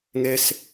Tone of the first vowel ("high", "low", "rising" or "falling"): high